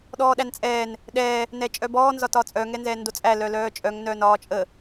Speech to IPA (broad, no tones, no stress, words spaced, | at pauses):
ɗɔːɗænt͡sʼɛːn | ɗɛː | nɛt͡ʃʼœbɔː nzɒtɒːt͡sʼœ ŋɛnzɛːndot͡sʼæ lœlœːt͡ʃʼœŋ nœːnɒːt͡ʃʼə